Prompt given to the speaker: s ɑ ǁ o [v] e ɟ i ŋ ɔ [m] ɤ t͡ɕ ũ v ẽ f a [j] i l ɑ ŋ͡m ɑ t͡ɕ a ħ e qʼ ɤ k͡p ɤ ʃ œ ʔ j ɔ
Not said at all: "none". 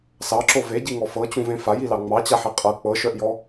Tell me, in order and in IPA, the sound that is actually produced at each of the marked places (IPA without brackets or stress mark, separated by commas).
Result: v, f, j